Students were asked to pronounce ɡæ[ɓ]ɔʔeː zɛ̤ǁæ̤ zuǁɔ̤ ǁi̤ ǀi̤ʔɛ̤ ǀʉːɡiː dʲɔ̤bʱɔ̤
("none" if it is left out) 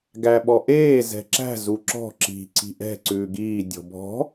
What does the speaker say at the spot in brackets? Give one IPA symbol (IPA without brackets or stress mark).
ɓ